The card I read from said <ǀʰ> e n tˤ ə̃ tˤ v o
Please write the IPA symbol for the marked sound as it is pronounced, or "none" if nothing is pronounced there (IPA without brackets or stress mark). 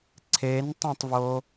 ǀʰ